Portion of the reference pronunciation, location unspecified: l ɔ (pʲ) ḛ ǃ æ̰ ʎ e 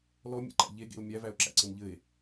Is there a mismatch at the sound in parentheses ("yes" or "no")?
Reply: yes